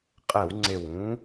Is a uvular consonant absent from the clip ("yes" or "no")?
no